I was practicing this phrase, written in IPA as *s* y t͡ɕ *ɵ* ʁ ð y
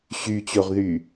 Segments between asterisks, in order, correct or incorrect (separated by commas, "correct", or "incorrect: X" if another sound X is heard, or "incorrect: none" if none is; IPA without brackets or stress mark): incorrect: ɕ, incorrect: o